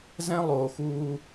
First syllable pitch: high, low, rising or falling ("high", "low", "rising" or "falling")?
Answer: high